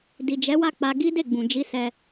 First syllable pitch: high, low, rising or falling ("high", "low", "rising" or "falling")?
low